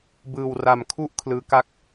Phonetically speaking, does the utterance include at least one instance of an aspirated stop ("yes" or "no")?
yes